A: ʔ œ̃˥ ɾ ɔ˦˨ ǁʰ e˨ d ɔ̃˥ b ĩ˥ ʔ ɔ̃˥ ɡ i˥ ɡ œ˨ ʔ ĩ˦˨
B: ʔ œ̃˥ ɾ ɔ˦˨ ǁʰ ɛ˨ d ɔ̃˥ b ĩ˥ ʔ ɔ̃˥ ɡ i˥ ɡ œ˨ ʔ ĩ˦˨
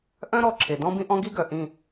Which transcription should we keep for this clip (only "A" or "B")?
A